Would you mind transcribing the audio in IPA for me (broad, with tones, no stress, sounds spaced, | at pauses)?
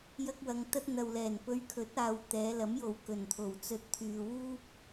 j ɐ˥ k̚ w ɐ˧ ŋ t̪ ɐ˥ t̚ n̪ ɐ˨ w l ɛː˨˩ n p ɵ˧ ɥ kʰ ɵ˨˥ t̚ aː˨ w t̪ ɛː˨˧ l ɐ˨˥ m j o˨ w k ɵ˨˩ n t̪ʰ o˨˩ w t͡s ɵ˧ t̚ t̪ʰ yː˨ w uː˥ p̚